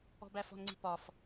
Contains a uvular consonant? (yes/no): no